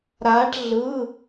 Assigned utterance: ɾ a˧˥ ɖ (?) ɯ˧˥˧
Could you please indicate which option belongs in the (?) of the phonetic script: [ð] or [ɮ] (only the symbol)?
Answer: ɮ